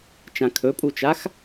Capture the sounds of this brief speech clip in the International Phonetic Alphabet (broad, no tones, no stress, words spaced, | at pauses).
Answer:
t͡ʃãkʰɵpʼut͡ʃax